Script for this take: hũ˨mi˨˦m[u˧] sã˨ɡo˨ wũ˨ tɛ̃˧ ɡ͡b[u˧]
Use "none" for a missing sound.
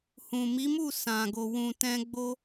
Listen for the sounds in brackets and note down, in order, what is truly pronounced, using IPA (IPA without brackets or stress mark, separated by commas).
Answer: u˦˨, o˧